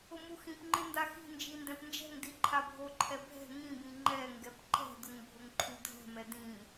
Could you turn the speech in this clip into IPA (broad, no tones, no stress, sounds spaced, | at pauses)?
ʊ m u x ĩ p ŋ͡ǃ ɪ n d a x i̤ n d͡ʒ i n d ɛ̃ p n d͡ʒ ɛ̤ ŋ d i ǃʰ a bʱ o ǃʰ ɛ bʱ ɛ̤ ŋ ĩ b ĩ ŋ͡ǃ ɛ ŋ ɡ ɛ p ǃ ɛ̤ d ʊ ŋ bʱ ʊ ŋ ǃʰ u dʱ ɛ̤ m ɛ d ĩ